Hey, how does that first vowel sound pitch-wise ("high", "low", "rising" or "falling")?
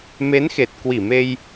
rising